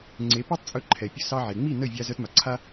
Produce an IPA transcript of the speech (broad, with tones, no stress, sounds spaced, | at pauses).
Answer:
ŋ͡ǀ e˩˥ p e˥ tˤ t͡sʼ ɵ˧ ǃʰ ɛ˩ pʲ ɵ˧ s ɑ˧ ʕ e˩ ŋ͡m i˥˩ n ə˥˩ vʲ a˧ z œ˧ t m a˩ ǀʰ a˥